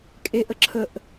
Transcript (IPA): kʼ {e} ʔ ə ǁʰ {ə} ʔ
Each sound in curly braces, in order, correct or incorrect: correct, correct

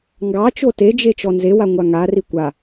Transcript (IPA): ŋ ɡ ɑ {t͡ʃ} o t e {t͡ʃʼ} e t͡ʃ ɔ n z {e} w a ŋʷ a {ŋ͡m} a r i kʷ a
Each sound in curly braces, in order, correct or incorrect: correct, incorrect: d͡ʒ, correct, incorrect: ŋ

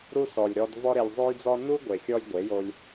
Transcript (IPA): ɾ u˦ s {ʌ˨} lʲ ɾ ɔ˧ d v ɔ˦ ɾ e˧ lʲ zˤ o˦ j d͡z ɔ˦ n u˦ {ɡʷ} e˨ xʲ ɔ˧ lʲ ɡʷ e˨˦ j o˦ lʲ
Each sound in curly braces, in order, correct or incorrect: incorrect: ɔ˨, correct

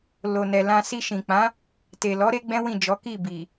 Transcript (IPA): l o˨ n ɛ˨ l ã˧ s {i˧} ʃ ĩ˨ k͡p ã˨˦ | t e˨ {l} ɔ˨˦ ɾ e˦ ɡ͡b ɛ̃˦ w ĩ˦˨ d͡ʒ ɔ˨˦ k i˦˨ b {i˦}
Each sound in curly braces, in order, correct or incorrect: correct, correct, incorrect: i˨

